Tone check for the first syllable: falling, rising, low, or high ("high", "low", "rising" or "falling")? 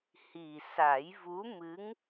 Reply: low